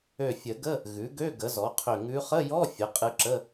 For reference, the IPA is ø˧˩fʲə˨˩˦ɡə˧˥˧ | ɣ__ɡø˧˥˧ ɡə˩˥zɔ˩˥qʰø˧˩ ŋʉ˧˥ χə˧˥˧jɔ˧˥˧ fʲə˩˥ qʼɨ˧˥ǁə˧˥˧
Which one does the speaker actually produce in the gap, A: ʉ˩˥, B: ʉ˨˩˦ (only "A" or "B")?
A